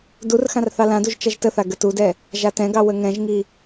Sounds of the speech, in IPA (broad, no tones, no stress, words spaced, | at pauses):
dur xãrθɑlãduʒ t͡ʃɐʒtəθa ɡətudɛ | ʒatɛ̃ɡɑ wəŋɛ̃ʒŋi